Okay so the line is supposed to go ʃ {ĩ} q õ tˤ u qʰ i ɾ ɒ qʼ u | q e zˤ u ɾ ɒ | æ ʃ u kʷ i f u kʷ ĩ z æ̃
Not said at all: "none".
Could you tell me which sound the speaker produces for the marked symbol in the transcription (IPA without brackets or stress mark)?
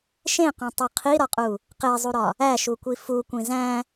ẽ